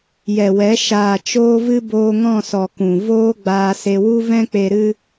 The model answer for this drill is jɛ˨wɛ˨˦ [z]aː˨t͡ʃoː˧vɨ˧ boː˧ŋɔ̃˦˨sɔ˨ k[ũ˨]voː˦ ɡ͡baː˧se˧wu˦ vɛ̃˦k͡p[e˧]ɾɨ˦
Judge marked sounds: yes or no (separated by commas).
no, yes, yes